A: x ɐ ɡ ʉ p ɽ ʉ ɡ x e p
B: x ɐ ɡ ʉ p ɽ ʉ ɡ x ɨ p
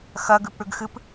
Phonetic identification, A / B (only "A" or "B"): B